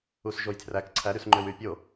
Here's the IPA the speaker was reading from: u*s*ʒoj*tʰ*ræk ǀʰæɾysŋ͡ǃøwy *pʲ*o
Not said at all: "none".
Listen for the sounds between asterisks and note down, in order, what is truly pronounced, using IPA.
s, tʰ, pʲ

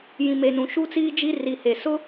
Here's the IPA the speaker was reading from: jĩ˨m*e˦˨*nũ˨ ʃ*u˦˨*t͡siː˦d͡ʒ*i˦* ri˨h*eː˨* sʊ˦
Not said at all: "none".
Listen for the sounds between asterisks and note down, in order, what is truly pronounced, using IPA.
e˨, u˦, i˦, e˨

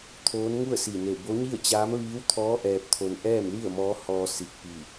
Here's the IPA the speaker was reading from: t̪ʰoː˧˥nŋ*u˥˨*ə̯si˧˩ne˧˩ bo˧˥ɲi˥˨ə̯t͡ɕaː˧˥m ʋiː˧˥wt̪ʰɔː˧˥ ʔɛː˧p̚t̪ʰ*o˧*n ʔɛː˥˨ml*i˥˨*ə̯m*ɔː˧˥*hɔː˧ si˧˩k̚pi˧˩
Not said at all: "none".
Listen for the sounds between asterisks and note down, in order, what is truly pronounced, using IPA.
u˥˨, o˧, i˥˨, ɔː˧˥

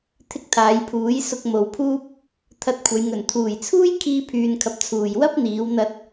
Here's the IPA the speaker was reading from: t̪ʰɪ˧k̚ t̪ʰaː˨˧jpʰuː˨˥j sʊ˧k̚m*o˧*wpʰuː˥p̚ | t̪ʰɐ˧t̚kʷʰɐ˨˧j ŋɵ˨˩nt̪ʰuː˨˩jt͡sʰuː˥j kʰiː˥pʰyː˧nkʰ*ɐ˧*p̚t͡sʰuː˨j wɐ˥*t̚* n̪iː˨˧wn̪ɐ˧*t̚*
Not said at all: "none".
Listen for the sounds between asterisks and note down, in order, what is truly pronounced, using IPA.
o˨, ɐ˧, p̚, t̚

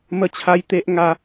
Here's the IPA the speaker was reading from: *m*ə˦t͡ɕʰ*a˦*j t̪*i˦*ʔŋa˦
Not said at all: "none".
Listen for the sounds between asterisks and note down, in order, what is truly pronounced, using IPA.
m, a˦, e˦

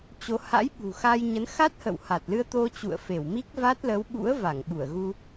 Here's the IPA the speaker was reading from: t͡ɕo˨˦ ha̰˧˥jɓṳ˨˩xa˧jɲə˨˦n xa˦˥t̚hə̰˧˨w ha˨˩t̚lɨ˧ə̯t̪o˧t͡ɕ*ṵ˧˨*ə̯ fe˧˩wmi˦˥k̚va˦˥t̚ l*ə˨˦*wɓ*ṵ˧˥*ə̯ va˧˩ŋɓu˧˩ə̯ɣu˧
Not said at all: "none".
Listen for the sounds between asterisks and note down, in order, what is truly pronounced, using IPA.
ṵ˧˨, ə˨˦, ṵ˧˥

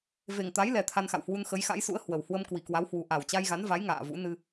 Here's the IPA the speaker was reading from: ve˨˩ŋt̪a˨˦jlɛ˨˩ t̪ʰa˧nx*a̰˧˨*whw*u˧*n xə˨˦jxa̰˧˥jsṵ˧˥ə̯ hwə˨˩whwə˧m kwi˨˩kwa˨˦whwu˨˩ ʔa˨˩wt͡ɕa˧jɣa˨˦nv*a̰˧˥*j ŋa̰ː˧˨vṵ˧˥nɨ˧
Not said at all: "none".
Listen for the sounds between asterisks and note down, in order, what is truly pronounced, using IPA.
a̰˧˨, u˧, a˨˦

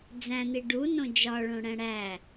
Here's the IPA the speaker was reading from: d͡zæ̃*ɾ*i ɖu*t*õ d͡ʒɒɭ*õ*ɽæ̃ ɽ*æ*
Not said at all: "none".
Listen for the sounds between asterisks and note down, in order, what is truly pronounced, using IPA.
n̪, n, õ, æ

